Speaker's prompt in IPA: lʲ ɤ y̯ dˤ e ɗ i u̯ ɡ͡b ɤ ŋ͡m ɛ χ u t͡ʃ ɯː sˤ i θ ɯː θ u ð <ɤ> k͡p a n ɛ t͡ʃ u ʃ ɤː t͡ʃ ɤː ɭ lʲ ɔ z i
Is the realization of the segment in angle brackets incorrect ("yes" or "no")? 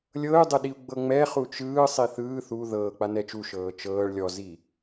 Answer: yes